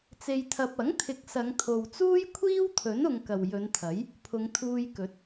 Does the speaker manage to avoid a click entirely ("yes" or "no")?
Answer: yes